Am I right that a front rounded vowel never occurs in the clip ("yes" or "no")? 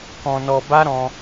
yes